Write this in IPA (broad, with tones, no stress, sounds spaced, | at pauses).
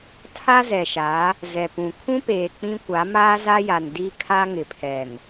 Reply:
tʰ a˦ z ɛ˨ ʃ a˨˦ | z ɛ˨ p ũ˨ kʰ ũ˦ p eː˨ k͡p ĩ˦ kʷ a˨˦ m aː˦ z a˦ j a˨ n d i˦ kʰ a˦ ŋ ɪ˨ pʰ ɛ˨ n